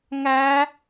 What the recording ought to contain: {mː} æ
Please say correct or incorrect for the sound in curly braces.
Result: incorrect